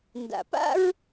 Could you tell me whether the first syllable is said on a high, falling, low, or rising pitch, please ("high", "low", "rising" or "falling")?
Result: low